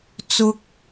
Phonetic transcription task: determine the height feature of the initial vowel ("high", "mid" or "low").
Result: high